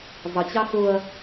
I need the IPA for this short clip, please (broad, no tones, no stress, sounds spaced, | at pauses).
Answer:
zˤ ə t͡ɕ ɑ x ʊ ɐ̯